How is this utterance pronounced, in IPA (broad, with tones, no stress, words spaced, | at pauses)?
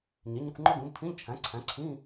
ɲe˩˥ɲu˧˥˧kʷŋ͡ǃɒ˥ ɡõ˩˥btʰĩ˧˥˧ʎt͡ʃʰæ̃˩˥ǀʰæ̃˩˥ ǀʰĩ˧˥˧